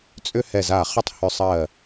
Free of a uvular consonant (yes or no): no